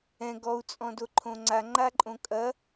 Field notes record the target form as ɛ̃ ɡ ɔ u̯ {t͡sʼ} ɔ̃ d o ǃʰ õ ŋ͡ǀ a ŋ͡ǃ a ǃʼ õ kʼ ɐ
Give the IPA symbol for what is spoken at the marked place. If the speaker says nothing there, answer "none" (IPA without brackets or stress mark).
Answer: t͡sʼ